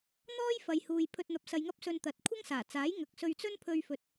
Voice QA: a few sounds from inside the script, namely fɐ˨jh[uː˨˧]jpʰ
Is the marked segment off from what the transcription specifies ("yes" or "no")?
yes